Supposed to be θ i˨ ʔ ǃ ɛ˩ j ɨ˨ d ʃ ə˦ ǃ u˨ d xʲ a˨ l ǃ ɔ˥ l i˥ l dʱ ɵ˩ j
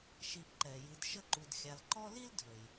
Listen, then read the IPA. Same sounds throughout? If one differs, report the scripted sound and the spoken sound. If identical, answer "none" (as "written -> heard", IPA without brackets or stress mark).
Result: θ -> ʃ